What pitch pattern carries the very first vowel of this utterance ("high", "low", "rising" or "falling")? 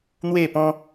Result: falling